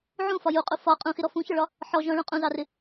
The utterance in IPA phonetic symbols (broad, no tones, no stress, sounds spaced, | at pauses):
ʕ ũ f ɒ j u qʼ u f ɒ qʼ ũ x ɪ ɾ ɔ f ũ ç ɒ ɭ ɒ | ħ ɔ ʒ ɔ̃ ɭ ũ qʼ ũ z ɑ r ɪ